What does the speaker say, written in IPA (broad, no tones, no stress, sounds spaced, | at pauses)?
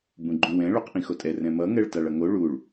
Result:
b ũ ɡ͡ǃ ũ w ɛ̃ ɭ o q ʔ ĩ x o tʼ ɛ r ɛ̃ m ʌ ŋ ɛ ɭ t a ɭ ʌ ŋ o ɭ u ɭ